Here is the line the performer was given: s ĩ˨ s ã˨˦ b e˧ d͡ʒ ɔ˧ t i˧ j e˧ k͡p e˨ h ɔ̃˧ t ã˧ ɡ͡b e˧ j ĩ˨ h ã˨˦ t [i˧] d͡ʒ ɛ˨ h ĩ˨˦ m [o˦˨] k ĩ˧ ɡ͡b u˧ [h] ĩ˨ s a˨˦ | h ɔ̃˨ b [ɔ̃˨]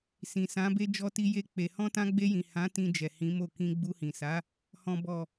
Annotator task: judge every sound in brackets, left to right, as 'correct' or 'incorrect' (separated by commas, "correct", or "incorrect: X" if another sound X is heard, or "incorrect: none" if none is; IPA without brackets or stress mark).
incorrect: ĩ˧, correct, correct, incorrect: ɔ˨